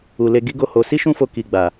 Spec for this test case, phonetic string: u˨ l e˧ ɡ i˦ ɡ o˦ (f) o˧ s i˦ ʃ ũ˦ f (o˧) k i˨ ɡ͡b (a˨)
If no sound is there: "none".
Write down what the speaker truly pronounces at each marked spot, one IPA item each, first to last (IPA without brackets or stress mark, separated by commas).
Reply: h, o˧, a˨